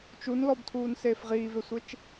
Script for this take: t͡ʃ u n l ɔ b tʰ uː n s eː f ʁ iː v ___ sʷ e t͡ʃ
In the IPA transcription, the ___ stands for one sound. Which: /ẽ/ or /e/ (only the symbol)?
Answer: e